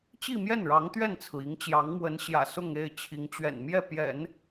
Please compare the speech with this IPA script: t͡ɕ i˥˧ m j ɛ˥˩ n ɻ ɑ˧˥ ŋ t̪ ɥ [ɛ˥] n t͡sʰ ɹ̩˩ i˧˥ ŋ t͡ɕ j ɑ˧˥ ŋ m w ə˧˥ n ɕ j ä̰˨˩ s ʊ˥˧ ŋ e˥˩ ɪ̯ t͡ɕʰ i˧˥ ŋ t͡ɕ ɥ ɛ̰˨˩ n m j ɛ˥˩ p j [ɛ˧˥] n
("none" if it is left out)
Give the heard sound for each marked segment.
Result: ɛ˥˩, ɛ̰˨˩˦

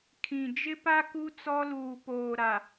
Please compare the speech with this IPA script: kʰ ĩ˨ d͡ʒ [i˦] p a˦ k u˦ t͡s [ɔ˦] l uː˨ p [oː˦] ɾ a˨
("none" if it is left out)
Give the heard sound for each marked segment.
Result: ɪ˦, ɔ˦, oː˨

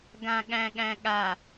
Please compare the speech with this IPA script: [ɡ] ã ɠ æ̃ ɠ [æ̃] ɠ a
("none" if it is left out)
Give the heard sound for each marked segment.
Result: ɡ, æ̃

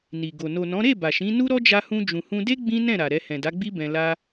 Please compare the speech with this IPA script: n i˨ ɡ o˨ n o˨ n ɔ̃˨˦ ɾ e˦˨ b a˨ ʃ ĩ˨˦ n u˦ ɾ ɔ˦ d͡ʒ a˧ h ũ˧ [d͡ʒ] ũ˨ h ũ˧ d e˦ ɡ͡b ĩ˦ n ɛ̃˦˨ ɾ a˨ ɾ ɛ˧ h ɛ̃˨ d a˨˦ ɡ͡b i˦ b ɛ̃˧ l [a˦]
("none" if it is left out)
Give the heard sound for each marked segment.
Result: d͡ʒ, a˦

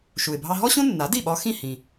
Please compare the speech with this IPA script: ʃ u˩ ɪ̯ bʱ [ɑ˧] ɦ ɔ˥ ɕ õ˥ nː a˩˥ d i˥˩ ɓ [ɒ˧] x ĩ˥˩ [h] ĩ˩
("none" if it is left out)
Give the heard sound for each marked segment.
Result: ɑ˧, ɒ˧, h

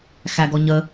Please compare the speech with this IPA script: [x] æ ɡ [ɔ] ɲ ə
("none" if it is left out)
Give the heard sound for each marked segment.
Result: x, ɔ

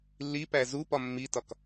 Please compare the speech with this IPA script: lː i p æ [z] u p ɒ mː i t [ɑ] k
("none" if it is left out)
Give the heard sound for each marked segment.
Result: z, ɒ

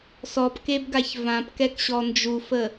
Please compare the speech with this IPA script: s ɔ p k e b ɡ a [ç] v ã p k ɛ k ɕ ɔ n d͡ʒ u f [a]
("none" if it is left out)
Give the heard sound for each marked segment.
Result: ç, ə

